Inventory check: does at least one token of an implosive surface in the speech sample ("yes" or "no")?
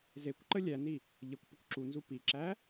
no